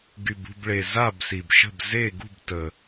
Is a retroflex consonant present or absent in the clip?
present